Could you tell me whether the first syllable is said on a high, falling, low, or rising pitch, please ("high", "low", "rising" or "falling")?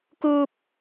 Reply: high